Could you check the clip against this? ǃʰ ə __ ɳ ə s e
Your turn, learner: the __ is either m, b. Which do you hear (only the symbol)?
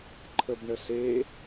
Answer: b